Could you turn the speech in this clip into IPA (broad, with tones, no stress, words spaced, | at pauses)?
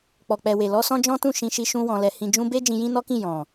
k͡pɔ˨k͡pɛ˨we˨lɔ˧ sɔ̃˦d͡ʒɔ̃˦ tũ˦˨ ʃĩ˧ʃi˧ ʃũ˦wɔ̃˧lɛ˧ hĩ˨d͡ʒũ˧be˦ d͡ʒĩ˧jĩ˦nɔ˦kĩ˦˨ jɔ̃˨